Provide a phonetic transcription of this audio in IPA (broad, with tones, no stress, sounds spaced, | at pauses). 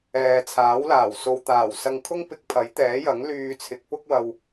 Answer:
ɛː˨ t͡sʰ aː˨˥ w l aː˨˩ w s o˨ w t̪ aː˨˩ w s ɐ˧ ŋ kʰ ʊ˥ ŋ p ɪ˧ k̚ pʰ ɐ˨˥ j t̪ ɛː˨˥ j ɐ˨˥ ŋ l yː˧ t͡sʰ ɪ˨˥ k̚ p ʊ˥ k̚ w ɐ˧ w